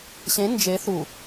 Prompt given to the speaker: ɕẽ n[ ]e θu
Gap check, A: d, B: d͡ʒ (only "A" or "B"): B